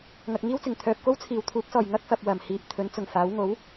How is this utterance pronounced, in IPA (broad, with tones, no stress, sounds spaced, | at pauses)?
ŋ ɐ˨ k̚ ŋ iː˥ w t͡s ɪ˨˩ ŋ t̪ʰ œː˨ p̚ k o˥ w t͡sʰ iː˨˩ w t̪ʰ uː˨˥ k̚ s ɔː˨˩ j ŋ ɐ˥ k̚ f ɐ˨ p̚ w ɐ˨˩ m h iː˨ p̚ t̪ʰ ɵ˨˥ n t͡s ʊ˨˩ ŋ f aː˨˥ w ŋ o˨˥ w